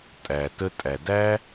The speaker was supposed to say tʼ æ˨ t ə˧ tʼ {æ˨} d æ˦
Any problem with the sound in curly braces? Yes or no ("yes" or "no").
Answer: no